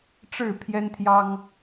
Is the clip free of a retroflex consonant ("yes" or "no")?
no